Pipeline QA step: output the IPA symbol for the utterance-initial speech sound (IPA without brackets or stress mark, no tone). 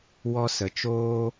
w